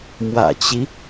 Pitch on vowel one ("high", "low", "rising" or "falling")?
low